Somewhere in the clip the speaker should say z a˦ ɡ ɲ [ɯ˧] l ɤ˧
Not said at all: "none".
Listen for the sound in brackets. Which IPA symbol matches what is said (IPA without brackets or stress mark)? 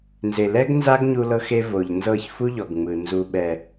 u˧